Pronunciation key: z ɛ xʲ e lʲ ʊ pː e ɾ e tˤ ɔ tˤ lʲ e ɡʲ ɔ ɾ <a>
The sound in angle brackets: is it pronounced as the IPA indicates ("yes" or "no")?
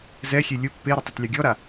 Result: yes